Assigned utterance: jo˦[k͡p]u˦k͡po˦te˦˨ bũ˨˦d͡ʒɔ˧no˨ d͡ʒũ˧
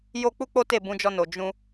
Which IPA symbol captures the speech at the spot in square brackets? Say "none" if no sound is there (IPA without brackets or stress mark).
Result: k͡p